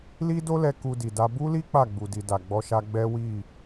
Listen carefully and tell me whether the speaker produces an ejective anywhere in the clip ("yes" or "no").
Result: no